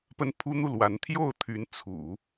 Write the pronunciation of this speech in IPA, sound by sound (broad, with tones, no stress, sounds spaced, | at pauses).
p ə˥ n pʰ u˥ n̪ u˥˩ l w a˧˥ n t̪ʰ j o˥˩ ʊ̯ t̪ʰ y˧˥ n t͡sʰ ṵ˨˩˦